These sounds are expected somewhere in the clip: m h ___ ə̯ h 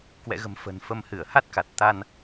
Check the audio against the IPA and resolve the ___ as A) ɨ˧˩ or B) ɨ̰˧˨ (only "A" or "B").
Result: A